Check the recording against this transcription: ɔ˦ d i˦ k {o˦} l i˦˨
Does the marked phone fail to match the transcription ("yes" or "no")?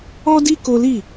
no